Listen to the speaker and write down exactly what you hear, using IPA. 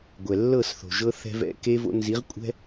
ɡʷ ɛ˨ lː ɤ˦˨ s θ o̤˨ ʒ ɤ˦ θ ɛ̤˦ v ɛ̰˦ k e˦ v o̰˦ n z i˨˦ ʁ kʷʼ ɛ̤˦

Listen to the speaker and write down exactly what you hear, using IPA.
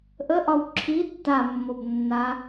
ʔ ə ʔ ɒ w ǁʰ i tː a mː o b nː a

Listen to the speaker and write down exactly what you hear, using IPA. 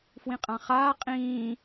f w ĩ qʼ ã χ aː qʼ ĩː

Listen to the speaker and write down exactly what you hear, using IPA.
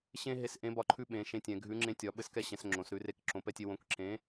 ɕ ẽ˦ ɦ e˨˥ s ʔ ẽ˨˥ b ɒ˨˥ ǃʰ ʉ˦ ɓ ẽ˩˧ ʃ ẽ˨˥ tʲ ɛ̃˩˧ ɡʱ ʉ˨˥ ŋ͡ǁ ẽ˨˥ tʲ ɒ˩˧ ɓ ɘ˦ s k ɛ˦ ɕ ɛ̃˩˧ s ŋ͡ǁ õ˩˧ s ɾ ʉ˩˧ r e˨˥ k ǁ õ˨˥ p ɛ˦ tʲ e˦ w õ˨˥ k ǁ ẽ˨˥

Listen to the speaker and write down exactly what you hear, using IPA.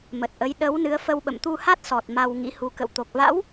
m ə˨˩ t̚ ʔ ə˨˦ j ɗ ə˨˦ w n ɨ˨˦ ə̯ f ə˧ w ɓ ə̰˧˨ m t̪ u˧ h a˦˥ t̚ s ɔ˨˩ t̚ m a˧ w ŋ ḭ˧˥ h u˨˦ k ə̰˧˨ w t̪ o˨˩ k̚ v a̰˧˥ w

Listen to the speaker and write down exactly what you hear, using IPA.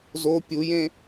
z o pʲ u j ẽ

